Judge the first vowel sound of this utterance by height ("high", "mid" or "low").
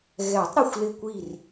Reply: mid